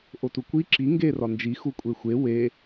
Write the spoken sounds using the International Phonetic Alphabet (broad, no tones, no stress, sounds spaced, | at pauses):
ʔ o t u kʷ i ǁ i ŋ ɡ e r ɒ n d͡ʒ i x u kʷʼ e xʷ e w e